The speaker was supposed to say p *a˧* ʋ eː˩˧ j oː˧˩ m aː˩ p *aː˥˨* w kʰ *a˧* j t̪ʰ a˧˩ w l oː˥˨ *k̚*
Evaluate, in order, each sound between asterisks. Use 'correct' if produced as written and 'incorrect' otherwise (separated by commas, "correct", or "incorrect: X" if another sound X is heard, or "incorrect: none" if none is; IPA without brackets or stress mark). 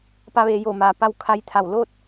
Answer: correct, incorrect: a˥˨, correct, incorrect: t̚